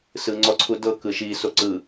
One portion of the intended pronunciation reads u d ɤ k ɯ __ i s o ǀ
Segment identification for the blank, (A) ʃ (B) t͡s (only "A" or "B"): A